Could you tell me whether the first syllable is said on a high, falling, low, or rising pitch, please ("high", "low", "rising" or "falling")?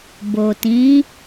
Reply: low